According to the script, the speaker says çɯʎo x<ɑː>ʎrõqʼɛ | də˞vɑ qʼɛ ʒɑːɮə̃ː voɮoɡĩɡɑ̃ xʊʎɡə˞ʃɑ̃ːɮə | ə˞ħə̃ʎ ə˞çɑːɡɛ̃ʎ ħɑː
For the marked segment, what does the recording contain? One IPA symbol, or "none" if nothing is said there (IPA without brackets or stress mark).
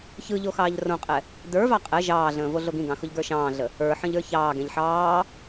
ɑː